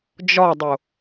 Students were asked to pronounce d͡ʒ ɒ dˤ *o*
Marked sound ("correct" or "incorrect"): correct